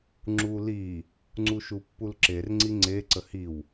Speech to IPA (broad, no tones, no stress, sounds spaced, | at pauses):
ŋ͡ǁ u l i | ŋ͡ǀ u ʃ u pː u l ǁ e r ŋ͡ǀ i ŋ͡ǀ e ǀ ə h i w